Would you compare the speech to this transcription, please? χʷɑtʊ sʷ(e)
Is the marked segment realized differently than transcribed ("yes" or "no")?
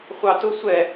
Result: yes